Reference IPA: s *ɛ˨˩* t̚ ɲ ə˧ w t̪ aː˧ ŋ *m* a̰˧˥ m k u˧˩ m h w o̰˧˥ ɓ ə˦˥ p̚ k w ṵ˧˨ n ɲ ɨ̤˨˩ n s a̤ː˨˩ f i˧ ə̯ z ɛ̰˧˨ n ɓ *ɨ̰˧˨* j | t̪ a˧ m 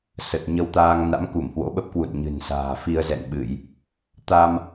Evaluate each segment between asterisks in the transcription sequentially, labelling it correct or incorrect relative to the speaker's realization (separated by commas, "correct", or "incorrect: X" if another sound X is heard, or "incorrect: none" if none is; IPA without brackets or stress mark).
incorrect: ə˨˩, incorrect: n, incorrect: ɨ˧˩˨